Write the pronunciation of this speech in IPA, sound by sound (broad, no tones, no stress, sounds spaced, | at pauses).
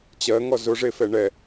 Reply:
t͡ɕ ɜ ŋ ɔ z ʊ ʐ e f ɛ ɳ ɛ